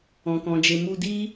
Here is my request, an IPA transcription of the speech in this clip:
ɔ̃˨ k ɔ̃˨ d͡ʒ e˨ m u˧ d i˦

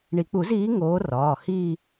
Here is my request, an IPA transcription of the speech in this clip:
ɳ i˨˩˦ k͡p u˨˩˦ z iː˨˦ ŋ oː˨˦ r ɒː˩˧˩ h iː˥˧

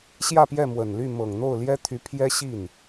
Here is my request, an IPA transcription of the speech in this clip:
ɕ j ä˥˧ p j ɛ˥˩ m w ə˨˩ n l y˥˩ m ɤ˨˩ ŋ n̪ o˥˩ ʊ̯ l j ɛ˥ t̪ʰ y˧˥ pʰ j ɛ˥ ɕ i˥˩ n

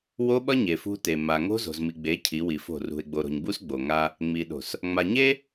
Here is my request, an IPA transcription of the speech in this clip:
w o˦ ɓ ʌ˦ ɲ e˨ f ṳ˦ t e˨ m a˨ ŋ o̤˦ z o̤˨ z m i˨ ɡ͡b e˨˦ cʰ i˨˦ w i˨ f o̤˦˨ r ṳ˨ e̯ ɡ͡b o˨ ɾ o̤˨ ɲ b u˦ s ɡ͡b o˨ ŋ a˦ | ŋ͡m i˨ ɗ o̤˨ s | ŋ͡m a˨ ɲ e˦

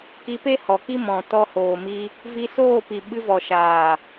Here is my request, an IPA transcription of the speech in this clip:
k i˧ p e˦ h ɔ˨ k i˦ m ɔ̃˨ t ɔ˧ h oː˨ m i˧ | v i˧ s oː˦˨ p i˨ ɓ ɨ˧ v ɔ˨ ʃ aː˨

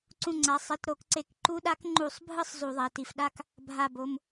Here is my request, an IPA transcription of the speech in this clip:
ǀ ũ˧˩ ŋ͡ǀ a˩˧˩ sˤ i˩˧˩ t ɾ o˧˩˧ k ǀ e˧˩˧ k ǃ u˧˥ ɗ a˧˥ k ŋ͡ǃ u˧˩˧ sˤ bʱ ɯ˥˧ sˤ z u˧˩˧ ðˤ ɛ˩˧˩ t i˧˩ f ɗ a˥˧ k | bʱ a˧˩ b o˩˧˩ m

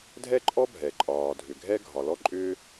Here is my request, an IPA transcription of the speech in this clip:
dʱ ɛ˥ ǃʼ ɔ˥ bʱ ɛ˩ ǃʼ ɒː˩ dʱ ʏ˩ ɡʱ ɛ˥ ɡʱ ɒ˩ l ɔ˥ ǃʼ ʏː˥

